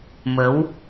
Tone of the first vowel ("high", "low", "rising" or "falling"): rising